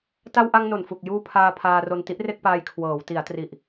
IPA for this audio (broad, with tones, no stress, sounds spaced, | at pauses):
t a˧ w ʔ a˧ ŋ n o˨˩ n f u˨˩ k̚ j uː˧ pʰ aː˧ pʰ aː˧ r o˧ n t i˦˥ ʔ r e˥˩ k̚ p aː˧ j kʰ w ɤː˩˦ w t i˩˦ a̯ t r i˨˩ ʔ